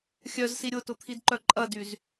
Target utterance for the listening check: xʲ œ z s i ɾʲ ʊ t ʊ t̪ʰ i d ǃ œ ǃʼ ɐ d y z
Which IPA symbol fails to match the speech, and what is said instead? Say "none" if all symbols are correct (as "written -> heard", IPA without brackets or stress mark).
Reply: none